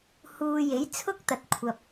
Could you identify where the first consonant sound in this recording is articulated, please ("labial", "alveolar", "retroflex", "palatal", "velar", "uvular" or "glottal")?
glottal